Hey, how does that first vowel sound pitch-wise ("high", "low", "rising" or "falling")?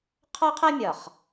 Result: high